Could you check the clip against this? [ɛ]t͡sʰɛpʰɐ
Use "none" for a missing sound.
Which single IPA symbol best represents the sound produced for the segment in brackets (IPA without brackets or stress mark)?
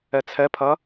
ɛ